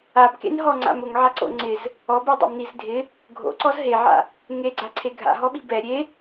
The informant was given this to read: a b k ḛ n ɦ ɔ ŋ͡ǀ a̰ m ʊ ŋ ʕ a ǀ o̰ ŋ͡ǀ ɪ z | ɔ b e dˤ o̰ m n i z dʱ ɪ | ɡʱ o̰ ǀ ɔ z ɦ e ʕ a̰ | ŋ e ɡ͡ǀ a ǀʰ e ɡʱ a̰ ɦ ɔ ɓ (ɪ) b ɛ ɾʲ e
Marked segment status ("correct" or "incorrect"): incorrect